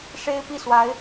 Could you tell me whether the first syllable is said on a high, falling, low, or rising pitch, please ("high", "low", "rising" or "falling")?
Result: high